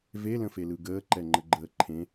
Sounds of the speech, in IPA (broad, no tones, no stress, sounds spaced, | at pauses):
v e l ə̃ f e l ɯ ɡ əː ǃ ɛ ŋ͡ǃ ə ɡ͡ǃ əː ǃʰ ẽ